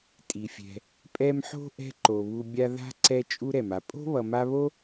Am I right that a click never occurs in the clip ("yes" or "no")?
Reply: no